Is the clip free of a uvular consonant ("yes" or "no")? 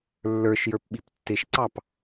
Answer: yes